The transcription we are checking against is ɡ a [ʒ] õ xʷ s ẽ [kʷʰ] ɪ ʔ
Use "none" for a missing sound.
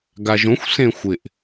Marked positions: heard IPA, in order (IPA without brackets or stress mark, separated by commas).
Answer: ʒ, xʷ